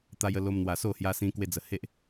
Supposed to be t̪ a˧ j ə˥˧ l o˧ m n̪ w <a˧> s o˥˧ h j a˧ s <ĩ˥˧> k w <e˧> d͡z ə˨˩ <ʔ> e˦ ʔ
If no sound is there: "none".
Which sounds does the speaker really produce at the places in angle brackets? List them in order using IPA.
a˨˩, ĩ˧, e˧, h

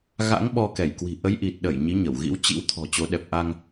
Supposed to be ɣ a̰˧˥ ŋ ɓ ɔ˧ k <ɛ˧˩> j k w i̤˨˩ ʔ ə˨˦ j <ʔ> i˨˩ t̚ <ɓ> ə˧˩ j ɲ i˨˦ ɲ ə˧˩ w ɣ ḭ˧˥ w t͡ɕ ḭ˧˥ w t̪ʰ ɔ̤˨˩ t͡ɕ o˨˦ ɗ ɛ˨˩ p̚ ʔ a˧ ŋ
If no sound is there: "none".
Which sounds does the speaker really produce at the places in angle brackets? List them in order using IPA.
ɛ˧˩, ʔ, ɗ

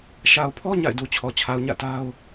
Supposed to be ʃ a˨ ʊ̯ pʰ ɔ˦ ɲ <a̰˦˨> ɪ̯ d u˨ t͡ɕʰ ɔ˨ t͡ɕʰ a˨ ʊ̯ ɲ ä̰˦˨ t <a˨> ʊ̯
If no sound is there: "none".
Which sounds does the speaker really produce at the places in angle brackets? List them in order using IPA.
a̰˦˨, a˦

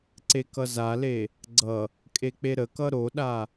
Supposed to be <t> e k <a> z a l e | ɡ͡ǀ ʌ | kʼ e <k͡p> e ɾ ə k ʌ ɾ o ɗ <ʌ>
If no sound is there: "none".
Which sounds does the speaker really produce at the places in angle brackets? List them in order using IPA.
ǀ, ʌ, k͡p, a

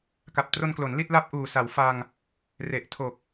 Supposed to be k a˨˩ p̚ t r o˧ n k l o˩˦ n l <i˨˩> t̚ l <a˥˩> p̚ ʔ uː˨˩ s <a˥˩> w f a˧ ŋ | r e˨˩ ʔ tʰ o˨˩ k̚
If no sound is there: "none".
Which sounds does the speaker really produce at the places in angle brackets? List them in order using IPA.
i˥˩, a˦˥, a˩˦

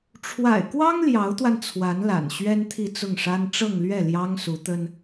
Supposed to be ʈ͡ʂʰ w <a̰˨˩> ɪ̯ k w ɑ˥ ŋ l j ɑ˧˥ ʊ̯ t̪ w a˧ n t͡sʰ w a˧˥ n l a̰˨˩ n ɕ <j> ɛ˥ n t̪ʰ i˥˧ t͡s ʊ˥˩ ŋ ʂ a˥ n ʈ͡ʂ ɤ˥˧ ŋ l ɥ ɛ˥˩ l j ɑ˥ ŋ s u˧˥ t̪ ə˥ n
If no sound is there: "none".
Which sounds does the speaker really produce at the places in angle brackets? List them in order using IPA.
a̰˨˩, ɥ

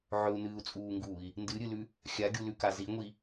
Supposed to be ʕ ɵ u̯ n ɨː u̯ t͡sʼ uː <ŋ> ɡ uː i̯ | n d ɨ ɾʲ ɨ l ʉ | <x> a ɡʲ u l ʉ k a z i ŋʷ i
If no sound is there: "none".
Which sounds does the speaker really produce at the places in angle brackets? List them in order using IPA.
ŋ, xʲ

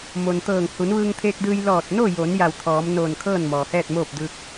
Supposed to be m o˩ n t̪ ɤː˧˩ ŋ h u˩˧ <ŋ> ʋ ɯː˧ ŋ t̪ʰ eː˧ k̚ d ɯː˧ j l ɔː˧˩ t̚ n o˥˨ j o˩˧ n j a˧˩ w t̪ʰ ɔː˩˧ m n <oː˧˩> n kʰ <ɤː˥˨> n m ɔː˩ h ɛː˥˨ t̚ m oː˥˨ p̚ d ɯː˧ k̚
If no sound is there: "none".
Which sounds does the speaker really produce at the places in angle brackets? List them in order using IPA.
n, oː˧˩, ɤː˥˨

